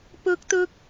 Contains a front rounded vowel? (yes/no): no